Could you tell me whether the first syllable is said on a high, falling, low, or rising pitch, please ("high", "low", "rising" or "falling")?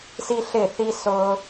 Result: high